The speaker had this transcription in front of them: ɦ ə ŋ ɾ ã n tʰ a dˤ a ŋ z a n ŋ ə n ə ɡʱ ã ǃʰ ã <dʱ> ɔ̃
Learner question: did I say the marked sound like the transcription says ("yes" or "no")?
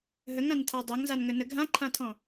no